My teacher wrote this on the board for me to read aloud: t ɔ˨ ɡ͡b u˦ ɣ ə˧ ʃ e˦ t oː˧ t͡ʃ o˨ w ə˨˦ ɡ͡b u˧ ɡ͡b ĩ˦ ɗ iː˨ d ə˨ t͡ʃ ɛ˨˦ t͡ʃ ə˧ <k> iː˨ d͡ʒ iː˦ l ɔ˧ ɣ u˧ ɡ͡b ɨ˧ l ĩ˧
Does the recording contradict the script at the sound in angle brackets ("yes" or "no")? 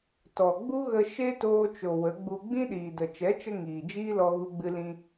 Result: yes